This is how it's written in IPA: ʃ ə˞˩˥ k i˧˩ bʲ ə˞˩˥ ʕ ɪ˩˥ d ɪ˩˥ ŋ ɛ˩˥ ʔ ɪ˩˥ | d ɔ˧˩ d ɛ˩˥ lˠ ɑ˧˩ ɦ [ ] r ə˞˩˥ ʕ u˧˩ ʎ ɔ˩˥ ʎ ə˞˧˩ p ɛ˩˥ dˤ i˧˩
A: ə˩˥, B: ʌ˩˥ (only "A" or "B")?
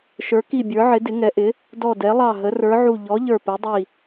A